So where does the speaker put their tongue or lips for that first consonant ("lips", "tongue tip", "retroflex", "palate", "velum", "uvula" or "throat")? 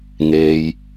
velum